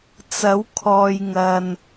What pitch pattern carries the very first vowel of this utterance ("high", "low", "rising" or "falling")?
rising